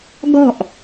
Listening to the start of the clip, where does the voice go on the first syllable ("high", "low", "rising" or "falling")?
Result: falling